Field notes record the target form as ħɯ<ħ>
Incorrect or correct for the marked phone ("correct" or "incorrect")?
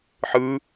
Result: incorrect